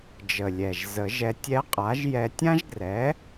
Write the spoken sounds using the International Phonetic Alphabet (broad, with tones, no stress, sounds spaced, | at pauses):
d͡ʒ ə˨˩ lʲ ɛ˨˩ ʒ z ə˨˩˦ ʒ ɛ˧ tʲ ɛ˧˥ qʼ a˩˥ ʒ j ɛ˧ tʲ ã˥ ʒ ɡ r ɛ˩˥